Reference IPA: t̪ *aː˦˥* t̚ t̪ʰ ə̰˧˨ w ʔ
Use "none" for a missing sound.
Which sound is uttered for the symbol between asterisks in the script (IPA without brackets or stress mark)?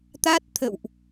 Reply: a˦˥